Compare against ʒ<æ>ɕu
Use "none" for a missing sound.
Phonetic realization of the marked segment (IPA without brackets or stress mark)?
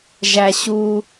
æ